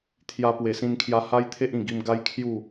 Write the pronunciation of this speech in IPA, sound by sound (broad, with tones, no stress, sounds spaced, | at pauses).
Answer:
t̪ʰ j a˧ p w e˨˩ s ĩ˧ n kʰ j a˧ h a˦ j t̪ʰ e˦ ʔ ĩ˨˩ ɡ i˧ m ɡ a˦ j kʰ j u˥˧